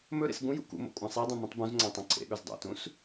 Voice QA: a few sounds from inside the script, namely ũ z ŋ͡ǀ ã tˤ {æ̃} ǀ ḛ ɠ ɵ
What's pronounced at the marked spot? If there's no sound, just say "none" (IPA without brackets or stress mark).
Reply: ɐ̃